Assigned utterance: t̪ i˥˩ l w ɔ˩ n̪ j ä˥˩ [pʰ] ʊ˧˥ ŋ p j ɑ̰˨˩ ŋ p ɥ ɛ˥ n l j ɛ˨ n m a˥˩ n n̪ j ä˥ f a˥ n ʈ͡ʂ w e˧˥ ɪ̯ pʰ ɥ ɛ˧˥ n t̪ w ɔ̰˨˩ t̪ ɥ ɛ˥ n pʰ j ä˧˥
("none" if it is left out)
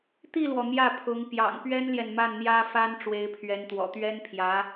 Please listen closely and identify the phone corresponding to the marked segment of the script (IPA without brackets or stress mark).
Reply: pʰ